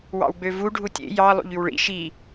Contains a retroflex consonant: yes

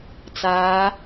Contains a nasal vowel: no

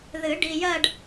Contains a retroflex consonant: yes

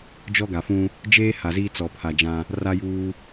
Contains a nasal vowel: yes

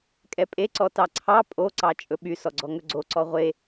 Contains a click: yes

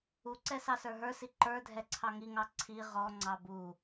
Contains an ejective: no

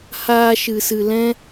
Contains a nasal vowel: yes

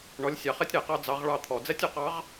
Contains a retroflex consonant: yes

